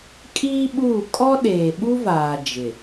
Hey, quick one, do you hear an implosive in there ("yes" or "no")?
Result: yes